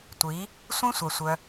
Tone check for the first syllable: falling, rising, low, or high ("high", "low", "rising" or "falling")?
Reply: rising